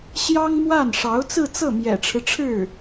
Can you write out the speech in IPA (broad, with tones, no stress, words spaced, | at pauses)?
ɕjɑ˥ŋmwa˥˩n ʂɑ˧˥ʊ̯t͡sɹ̩˥˧t͡sɤ˥˩ mjɛ̰˨˩ʈ͡ʂʰɻ̩˦ʈ͡ʂʰɻ̩˥˩